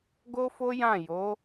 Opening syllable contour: high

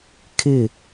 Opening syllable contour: falling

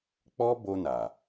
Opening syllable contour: high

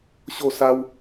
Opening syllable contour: falling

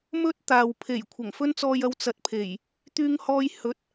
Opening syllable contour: high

